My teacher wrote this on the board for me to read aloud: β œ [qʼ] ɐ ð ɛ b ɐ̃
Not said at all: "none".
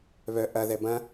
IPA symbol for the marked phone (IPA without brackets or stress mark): ʔ